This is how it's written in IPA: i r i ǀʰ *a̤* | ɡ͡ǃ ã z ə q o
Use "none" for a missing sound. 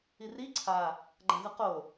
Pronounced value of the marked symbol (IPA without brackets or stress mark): a